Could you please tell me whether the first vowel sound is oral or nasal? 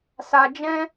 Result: oral